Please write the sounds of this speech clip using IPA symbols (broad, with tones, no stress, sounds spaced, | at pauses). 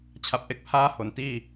t͡ɕʰ a˨˩ p̚ ʔ e˦˥ k̚ pʰ aː˥˩ h o˩˦ n t iː˥˩